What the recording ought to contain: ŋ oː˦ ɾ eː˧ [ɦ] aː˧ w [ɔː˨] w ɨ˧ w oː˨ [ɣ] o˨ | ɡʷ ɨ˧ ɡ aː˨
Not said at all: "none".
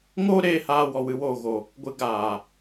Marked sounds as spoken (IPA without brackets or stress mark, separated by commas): h, ɔ˨, ɣ